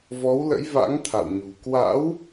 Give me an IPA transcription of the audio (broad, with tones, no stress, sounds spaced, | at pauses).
v ɔ˨˦ w l ə̰˧˥ j v a̰˧˥ ŋ t̪ʰ a̰˧˨ w ɲ ṳ˨˩ k w a̰˧˥ w